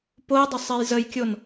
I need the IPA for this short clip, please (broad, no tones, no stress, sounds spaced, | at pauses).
p o j dˤ ə sˤ e j z ə j kʲ o n